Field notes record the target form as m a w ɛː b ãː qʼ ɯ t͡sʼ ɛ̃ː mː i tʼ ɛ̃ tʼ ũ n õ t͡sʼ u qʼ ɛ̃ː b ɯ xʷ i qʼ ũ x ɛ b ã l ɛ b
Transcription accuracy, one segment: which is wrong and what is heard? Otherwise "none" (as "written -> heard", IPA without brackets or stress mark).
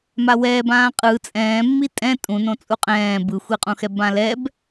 none